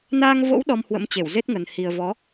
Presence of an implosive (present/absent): present